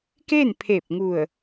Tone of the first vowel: falling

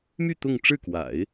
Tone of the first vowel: falling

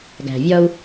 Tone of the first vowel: low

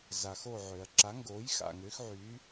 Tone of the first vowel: low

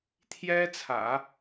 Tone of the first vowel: high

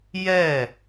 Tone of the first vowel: falling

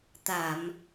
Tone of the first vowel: low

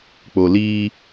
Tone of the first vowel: low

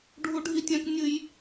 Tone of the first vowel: high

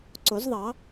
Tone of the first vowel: rising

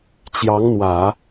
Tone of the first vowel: rising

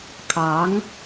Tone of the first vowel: rising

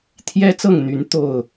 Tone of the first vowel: high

